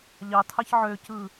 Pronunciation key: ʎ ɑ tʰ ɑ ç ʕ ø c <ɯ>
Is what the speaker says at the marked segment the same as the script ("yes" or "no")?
yes